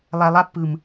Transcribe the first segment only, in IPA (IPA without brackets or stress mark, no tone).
lˠ